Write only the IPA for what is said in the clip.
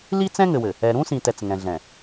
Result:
l i˦ t͡s ɛ̃˦ ŋ ɘ˨ w ɘ˨ | ɛ˨ ɾ ũ˦ s ĩ˨ t ɛ˨ t͡s ŋ ɛ̃˨ ɮ ɛ̃˨

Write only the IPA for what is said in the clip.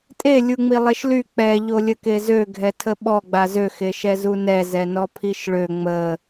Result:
tʼ e lʲ u ŋ͡m i lˠ e ʃ l y k͡p ɛ ʎ o lʲ ə k e z ø ɡʱ ɛ tʰ ə ɓ ɔ ɡ͡b a z ø x e ʃ ɛ z u n ɛ z ɛ n ɔ pʰ i ʃ ɭ ø ŋ͡m ə

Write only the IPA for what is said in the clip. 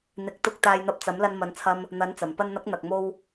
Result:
n̪ ɪ˨˥ k̚ t̪ ʊ˧ k̚ t̪ aː˧ j n̪ ɐ˧ p̚ t͡s ɐ˨˥ m l ɐ˧ n m ɐ˨˧ n t͡sʰ ɐ˧ m | n̪ ɐ˨˥ n t͡s ɐ˨˩ m p ɐ˧ n n̪ ɐ˨˥ k̚ n̪ ɐ˨ k̚ m o˧ w

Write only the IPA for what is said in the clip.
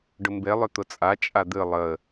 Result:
ɖ ʊ m b e lˠ ʏ t̪ ʊ t͡sʼ a t͡ʃʼ a d̪ ɨ lˠ ə

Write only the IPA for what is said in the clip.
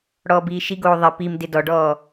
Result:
ɽ ɔː b iː ʃ i ɡ oː ðˤ ɪ p i m d ɪ d ɔ ɖ ɔː

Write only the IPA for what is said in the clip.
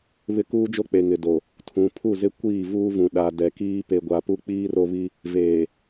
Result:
β ɪ˦ k uː˦ d͡ʒ o˦ k͡p e˨ ŋ ɪ˨ d o˨ | tʰ ũ˨ pʰ u˦˨ z ɪ˦ kʷ iː˦˨ v uː˦ v ũ˨ ɗ a˨ d ɛ˨ k iː˦ p e˨ ɡʷ a˨ p u˦ k͡p iː˦ r o˦ β i˦ | v eː˨

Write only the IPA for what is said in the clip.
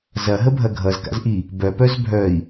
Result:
z ɐ ɦ ə bʱ ɐ ɡʱ ʌ z k a̰ z ʔ i | b œ p œ z bʱ œ i̯

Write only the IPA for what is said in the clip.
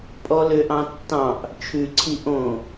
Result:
pʼ ɔ l ø ʔ ɑ̃ tː ɑ̃ ʔ | t͡ʃʰ ʉ ǀʰ i ʔ õ

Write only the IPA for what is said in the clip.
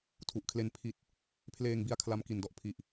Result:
tʰ u˨˩ ʔ kʰ l e˧ n pʰ i˦˥ t̚ | pʰ l eː˧ ŋ b i˧ a̯ kʰ l a˦˥ m k i˨˩ n d ɔ˦˥ ʔ pʰ i˨˩ ʔ

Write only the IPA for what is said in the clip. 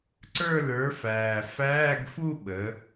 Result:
ǀ ə˞˥˧ l ə˞˨˥ f æː˨˩ f æː˧˥˧ ɡ f u˥˧ ɓ ə˩˧

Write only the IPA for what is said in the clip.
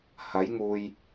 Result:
h ɐ˨˥ j ŋ uː˨ j

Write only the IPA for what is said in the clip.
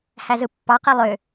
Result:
h æ z ɯ pː ɑ q e lˠ ø

